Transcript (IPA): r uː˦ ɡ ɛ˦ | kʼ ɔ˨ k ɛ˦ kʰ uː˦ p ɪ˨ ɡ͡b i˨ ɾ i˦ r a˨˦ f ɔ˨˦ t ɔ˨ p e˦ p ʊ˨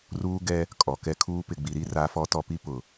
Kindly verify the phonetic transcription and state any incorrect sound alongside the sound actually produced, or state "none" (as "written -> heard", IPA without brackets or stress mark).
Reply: e˦ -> i˦